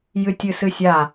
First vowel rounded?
no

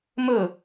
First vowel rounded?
yes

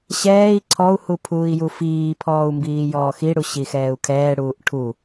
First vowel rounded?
no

